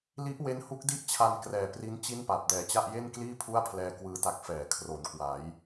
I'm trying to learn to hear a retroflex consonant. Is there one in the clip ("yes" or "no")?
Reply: no